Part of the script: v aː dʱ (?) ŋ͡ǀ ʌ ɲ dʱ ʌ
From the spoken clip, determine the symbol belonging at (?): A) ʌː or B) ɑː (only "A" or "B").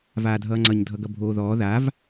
A